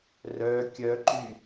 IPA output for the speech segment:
r œ kʲ œ ǃ y

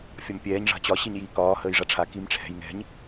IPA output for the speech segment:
fʲ ɒ m pʲ ɛː ɲ ʐ a̤ t͡ɕ ɒ ɕ i ɲ j iː k ɒː h əː j ʐ a ʈ͡ʂʰ a k i m ʈ͡ʂʰ ɛ̤ j ŋ ɛ̤ ɲ

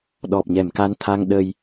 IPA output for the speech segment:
ɗ ɔ˨˩ p̚ ɲ ɛ˨˩˨ m k a˧˥ n t̪ʰ a˧ ŋ ɗ ə˧ j

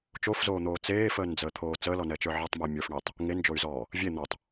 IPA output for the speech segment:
t͡ʃ o f z oː n̪ oː t͡s eː f əː n d͡z əː t̪ʰ oː t͡s əː l ɔ n ɛ t͡ʃ ə˞ ʕ ɛ tˤ m ə i̯ mʲ ə˞ f ɳ e tˤ | ŋ e n d͡ʒ o y̯ z ɔː | vʲ e n̪ ɔ tˤ

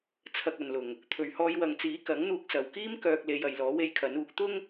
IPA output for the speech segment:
t͡sʰ ɐ˧ k̚ ɐ˨ n l ʊ˨˩ ŋ | t̪ʰ ɵ˨ ɥ h ɔː˧ j w ɐ˨˧ ŋ t͡s iː˨˥ k ɐ˨˥ ŋ n̪ uː˧ k̚ s ɐ˨ w k iː˥ m k œː˧ k̚ l e˨˧ j ɐ˨ j l ɔː˨˥ w e˧ j kʰ ɐ˨˥ n uː˨˥ k̚ t̪ ʊ˥ ŋ

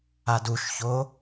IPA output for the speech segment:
a d u ʃ ç o

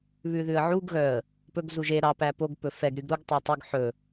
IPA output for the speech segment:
β ʉ ð ʉ ə̯ ʕ u ɡ ɣ œ ə̯ | p ɵ ɡ z u ʒ e ɾ ɑ p æ p o ɡ p ɵ f ɛ ɡ ɾ y ɡ ɾ u ɡ tˤ o tˤ y ɡ ħ ɵ

